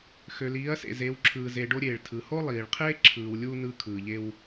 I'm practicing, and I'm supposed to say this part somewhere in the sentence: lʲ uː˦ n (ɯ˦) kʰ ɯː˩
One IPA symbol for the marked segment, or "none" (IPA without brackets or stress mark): ɯ˦